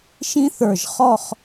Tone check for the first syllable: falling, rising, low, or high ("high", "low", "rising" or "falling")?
high